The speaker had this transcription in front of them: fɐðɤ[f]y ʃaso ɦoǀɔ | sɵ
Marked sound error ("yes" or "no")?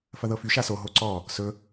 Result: no